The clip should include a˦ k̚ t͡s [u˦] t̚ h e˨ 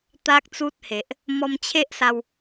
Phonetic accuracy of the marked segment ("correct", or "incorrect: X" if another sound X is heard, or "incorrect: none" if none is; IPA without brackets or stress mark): correct